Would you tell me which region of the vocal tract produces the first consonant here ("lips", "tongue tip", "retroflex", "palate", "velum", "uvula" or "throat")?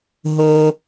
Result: throat